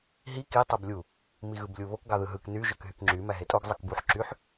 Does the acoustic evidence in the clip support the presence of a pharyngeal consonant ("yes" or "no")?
yes